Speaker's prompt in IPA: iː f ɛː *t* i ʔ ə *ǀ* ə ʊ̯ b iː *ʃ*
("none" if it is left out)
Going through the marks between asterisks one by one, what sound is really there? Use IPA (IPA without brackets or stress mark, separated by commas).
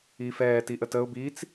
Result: t, t, t͡s